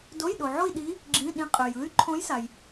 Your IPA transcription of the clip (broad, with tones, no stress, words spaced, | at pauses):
do˧˥˧jɗo˨ʕo˥˧i̯ ɗi˧˥ | ɡ͡ǁĩ˧˥˧ ɗĩ˧˥qʼø˨j ɯ˧˥y̯ǃʰõ˧˥jsa˨j